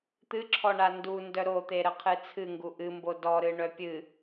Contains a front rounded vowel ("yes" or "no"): yes